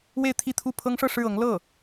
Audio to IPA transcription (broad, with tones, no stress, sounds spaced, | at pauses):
w e˥˧ ɪ̯ t̪ʰ i˥˧ t̪ʰ u˥˩ pʰ ɤ˥ ŋ ʂ ɤ˥˧ ʂ ɻ̩˥˩ ɤ˧˥ ŋ l ɤ˥˩